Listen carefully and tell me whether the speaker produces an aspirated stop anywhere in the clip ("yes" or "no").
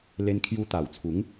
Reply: yes